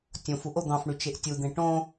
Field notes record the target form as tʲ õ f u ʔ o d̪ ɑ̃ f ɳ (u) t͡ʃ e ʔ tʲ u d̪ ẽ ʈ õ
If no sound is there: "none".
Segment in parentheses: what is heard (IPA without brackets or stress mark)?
y